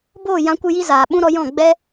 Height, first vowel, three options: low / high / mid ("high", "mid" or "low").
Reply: mid